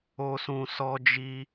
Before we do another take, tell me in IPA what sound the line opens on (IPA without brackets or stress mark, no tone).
o